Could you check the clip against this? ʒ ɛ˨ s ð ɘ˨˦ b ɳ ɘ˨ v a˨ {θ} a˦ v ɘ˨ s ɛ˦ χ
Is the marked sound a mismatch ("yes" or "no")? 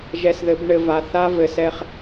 no